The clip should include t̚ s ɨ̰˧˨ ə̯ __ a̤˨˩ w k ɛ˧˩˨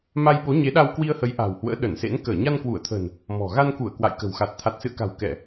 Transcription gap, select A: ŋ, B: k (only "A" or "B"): B